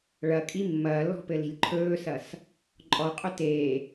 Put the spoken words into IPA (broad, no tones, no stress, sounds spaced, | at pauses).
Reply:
ɭ ɐ kʼ i mː ɐː lː ɔ̤ p ɘ l i̤ lʲ ǃʰ ɵː s ɐ s | ǃʼ ɔ qʼ ɵ t eː